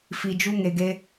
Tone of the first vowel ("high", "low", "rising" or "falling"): low